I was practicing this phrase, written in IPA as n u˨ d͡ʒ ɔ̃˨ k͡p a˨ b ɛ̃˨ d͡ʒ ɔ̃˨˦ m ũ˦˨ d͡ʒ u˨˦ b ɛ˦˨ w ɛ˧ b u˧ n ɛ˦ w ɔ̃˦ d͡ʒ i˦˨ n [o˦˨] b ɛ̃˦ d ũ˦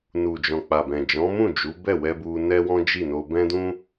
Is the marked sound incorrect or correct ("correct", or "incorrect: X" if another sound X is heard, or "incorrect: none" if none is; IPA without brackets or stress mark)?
incorrect: o˧